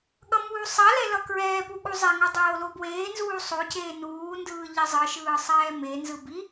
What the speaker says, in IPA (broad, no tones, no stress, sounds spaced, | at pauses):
ɠ ʌ m uː sˤ a l ɛ l ʌ k ɹ ɛː p u ɠ u zˤ ɛ ŋ o dˤ oː l o b w eː n z uː sˤ o c eː n uː n d ɯː ʎ i zˤ ɯ ʃ ɯː sˤ ɛː m e n z ɯ b i